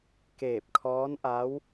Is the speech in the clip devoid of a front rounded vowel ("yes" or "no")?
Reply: yes